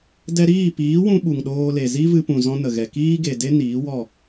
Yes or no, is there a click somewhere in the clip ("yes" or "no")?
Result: no